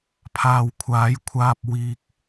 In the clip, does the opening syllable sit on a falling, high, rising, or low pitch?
low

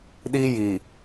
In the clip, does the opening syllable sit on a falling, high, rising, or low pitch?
high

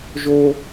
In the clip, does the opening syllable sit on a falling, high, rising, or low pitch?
high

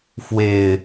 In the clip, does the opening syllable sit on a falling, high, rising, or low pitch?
low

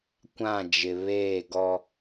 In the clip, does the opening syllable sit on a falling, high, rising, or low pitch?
falling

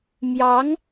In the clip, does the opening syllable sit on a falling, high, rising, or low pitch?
rising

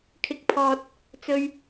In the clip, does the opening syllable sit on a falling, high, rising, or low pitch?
rising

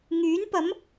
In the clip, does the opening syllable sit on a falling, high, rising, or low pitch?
rising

